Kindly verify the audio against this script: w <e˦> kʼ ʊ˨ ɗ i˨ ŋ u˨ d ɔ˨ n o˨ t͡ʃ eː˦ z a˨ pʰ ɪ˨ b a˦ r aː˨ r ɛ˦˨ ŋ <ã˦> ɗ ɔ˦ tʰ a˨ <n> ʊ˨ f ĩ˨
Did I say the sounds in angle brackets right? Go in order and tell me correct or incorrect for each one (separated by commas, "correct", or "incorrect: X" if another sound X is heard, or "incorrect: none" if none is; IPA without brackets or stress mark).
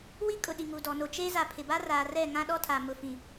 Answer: incorrect: i˦, correct, incorrect: m